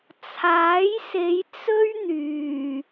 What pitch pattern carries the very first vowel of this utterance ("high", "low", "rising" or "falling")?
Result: rising